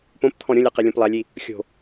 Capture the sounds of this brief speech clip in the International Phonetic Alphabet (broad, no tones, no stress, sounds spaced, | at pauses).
p õ p t̪ʰ ɔ̃ ɾʲ õ lʲ a q i lʲ õ p lˠ a lʲ i | xʲ o̤